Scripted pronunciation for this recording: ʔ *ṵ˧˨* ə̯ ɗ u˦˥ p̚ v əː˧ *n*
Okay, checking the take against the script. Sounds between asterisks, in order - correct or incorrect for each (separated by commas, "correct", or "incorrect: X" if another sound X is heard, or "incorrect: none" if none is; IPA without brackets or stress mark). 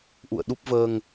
correct, incorrect: ŋ